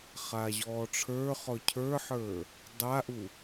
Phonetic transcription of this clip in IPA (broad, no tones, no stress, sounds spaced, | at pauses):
χ a ʑ ɔː ʈ͡ʂʰ ə˞ χ ɔ cʰ ə˞ ħ ə˞ | dˤ a ʔ u